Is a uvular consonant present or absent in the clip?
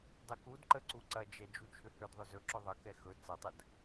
absent